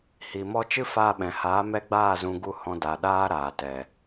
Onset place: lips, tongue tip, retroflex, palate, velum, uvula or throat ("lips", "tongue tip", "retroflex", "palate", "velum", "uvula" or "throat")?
throat